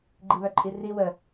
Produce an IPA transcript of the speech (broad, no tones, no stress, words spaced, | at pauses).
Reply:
ɡ͡ǃiβœǃʼiri wə